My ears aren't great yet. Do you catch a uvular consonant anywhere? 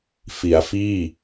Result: no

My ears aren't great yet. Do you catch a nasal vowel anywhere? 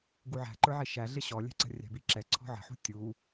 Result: no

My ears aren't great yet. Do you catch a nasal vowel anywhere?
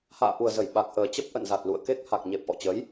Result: no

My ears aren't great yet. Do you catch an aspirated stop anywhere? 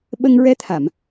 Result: yes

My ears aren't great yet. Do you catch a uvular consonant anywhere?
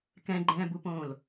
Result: no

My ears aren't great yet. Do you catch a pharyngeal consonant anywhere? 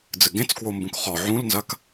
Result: yes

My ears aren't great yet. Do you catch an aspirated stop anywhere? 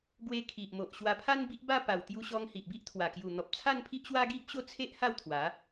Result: yes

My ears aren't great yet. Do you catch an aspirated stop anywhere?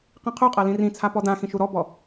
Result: yes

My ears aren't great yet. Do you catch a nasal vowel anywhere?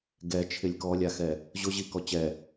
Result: no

